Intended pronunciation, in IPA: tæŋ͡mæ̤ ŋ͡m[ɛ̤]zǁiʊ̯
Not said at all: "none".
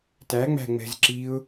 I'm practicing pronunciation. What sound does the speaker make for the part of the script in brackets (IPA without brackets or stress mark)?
ɛ̤